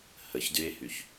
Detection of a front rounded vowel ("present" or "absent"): present